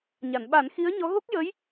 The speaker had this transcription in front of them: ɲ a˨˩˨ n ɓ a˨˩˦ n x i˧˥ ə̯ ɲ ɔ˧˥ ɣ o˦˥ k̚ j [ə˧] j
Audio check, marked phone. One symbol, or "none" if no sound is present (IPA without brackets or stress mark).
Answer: ə˧˥